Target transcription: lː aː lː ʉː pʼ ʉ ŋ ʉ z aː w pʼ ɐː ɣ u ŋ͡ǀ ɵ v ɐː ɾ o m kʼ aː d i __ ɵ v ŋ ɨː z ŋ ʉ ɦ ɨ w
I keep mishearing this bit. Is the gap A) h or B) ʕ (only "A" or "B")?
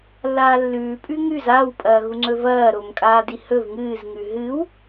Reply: A